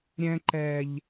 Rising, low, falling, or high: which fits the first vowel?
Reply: high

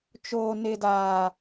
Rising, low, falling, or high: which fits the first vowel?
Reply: high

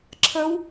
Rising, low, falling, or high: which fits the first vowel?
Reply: rising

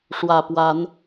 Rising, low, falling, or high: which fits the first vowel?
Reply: low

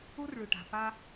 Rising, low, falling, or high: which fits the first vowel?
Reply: high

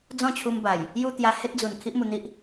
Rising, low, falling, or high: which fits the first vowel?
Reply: falling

